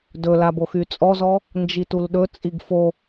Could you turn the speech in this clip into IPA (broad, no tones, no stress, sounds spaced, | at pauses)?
d ɵ l a b o x y t͡sʼ ɔ z ɔ | n d͡ʒ i t u l ɗ ɵ t͡sʼ i ɡ f o